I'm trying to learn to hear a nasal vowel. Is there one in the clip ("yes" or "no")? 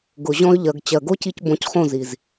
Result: yes